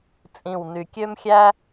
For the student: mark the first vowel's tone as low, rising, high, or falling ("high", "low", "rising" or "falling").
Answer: low